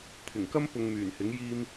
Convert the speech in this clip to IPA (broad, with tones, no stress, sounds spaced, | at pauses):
t̪ʰ ɪ˨˩ ŋ k ɐ˥ m p ʊ˧ ŋ m yː˨˩ n h ɪ˨˥ ŋ j iː˧ m